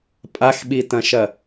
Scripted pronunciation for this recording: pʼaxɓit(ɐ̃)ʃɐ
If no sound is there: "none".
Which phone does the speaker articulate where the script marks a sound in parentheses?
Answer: ɐ̃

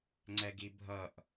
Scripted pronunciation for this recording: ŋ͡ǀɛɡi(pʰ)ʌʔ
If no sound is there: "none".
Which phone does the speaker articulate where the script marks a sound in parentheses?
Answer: bʱ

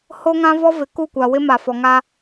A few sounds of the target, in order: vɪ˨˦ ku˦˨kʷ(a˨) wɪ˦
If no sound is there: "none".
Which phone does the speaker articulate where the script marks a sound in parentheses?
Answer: a˨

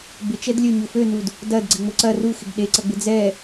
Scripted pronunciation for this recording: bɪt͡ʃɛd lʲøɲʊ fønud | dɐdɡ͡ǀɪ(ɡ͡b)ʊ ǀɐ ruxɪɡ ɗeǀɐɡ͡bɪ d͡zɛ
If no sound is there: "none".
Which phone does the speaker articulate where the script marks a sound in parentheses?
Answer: ŋ͡m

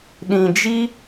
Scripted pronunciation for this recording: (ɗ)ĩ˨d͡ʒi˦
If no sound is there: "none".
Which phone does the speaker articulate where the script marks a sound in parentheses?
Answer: ɗ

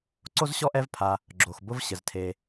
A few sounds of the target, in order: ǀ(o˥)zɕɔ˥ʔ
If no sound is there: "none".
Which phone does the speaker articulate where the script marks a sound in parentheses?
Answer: o˥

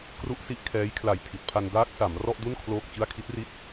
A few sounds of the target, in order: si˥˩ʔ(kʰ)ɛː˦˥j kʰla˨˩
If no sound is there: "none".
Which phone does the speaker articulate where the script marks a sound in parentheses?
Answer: kʰ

